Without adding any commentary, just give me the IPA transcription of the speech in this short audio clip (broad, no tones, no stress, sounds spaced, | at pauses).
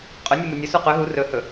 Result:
qʼ ɵ nʲ u m u nʲ ɵ s u q ɵ ɦ u r ɵ h ɵ